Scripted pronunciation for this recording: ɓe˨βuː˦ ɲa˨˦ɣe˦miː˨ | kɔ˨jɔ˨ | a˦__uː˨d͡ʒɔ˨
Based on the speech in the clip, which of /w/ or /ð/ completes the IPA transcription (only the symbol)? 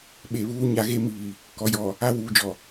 w